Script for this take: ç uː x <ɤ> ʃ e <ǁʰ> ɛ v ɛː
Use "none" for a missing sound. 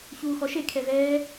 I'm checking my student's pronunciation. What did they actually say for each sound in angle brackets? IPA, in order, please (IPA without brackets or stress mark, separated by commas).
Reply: ɔ, kʰ